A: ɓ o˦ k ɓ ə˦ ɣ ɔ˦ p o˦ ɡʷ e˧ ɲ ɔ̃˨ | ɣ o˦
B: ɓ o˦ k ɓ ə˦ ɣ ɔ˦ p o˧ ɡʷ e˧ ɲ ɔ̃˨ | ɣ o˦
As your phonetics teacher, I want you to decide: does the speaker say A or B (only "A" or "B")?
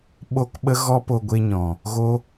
B